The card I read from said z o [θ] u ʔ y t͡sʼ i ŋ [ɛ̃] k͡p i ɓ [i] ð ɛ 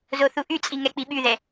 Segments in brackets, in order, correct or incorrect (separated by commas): correct, incorrect, incorrect